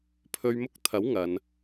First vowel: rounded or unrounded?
rounded